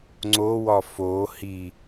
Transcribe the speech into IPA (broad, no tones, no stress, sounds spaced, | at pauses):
ŋ͡ǀ o w ɒ f o h i